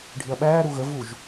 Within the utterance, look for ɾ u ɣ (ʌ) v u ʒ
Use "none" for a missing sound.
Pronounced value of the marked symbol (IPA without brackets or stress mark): ə